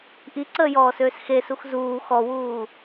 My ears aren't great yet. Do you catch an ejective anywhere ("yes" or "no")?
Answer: no